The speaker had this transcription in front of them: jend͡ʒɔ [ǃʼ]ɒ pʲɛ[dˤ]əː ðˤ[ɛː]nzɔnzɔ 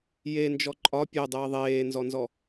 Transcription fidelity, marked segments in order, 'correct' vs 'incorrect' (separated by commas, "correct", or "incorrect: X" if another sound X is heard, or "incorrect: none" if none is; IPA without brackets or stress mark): correct, correct, incorrect: eː